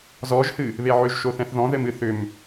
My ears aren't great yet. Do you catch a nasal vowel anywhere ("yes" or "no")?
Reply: yes